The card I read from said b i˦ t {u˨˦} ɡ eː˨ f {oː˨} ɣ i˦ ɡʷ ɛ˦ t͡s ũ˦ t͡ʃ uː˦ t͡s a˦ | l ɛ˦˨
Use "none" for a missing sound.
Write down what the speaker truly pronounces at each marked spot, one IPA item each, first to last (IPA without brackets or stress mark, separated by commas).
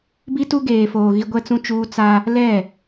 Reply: u˦, oː˨